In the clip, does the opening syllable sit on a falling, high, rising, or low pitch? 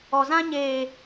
low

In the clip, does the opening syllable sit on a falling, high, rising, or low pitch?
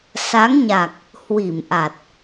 rising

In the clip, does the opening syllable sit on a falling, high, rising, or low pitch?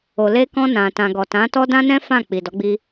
low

